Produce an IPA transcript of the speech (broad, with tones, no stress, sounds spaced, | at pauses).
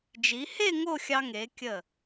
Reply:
d͡ʒ i˩˧ h e˥˧ ŋ o˥˧ xʲ ɑ˧ ŋ e˩˧ kʲ ə˧˩